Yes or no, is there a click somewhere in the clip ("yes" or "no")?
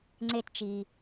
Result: yes